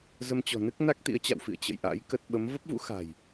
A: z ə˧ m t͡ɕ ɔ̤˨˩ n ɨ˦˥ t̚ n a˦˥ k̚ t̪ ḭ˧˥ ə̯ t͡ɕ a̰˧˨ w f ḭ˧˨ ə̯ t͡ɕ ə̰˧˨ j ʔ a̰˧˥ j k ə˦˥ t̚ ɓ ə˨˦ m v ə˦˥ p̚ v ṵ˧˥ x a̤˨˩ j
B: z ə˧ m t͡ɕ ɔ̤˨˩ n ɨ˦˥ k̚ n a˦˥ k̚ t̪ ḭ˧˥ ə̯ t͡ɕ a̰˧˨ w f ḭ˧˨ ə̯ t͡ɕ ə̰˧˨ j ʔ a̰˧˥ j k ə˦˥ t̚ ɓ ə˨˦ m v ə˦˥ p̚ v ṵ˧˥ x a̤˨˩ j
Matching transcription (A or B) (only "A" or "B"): B